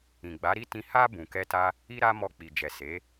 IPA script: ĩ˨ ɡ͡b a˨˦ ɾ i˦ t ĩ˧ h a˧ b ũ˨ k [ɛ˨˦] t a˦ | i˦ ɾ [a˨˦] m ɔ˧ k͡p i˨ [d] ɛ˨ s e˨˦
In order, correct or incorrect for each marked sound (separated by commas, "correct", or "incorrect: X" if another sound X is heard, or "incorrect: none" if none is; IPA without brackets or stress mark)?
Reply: incorrect: ɛ˧, incorrect: a˦, incorrect: d͡ʒ